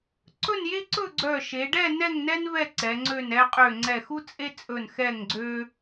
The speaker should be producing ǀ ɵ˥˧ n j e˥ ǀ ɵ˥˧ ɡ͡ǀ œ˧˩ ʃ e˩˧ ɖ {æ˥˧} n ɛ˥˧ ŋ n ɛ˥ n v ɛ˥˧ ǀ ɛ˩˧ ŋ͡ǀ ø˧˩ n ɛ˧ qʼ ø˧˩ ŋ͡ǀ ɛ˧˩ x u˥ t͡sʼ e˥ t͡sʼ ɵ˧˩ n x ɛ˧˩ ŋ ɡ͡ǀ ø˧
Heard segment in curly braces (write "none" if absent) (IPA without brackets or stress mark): ɛ˥˧